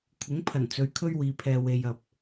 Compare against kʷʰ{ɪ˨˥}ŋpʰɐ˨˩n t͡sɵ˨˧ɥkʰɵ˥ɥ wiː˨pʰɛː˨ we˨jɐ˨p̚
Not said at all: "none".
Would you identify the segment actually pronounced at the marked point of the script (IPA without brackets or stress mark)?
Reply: ɪ˨˥